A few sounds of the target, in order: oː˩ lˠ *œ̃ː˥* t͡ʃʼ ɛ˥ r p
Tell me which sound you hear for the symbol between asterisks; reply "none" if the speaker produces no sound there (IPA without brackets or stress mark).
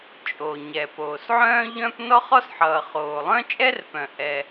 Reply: œ̃˥